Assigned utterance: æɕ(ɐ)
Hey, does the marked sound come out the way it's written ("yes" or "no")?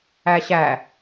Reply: no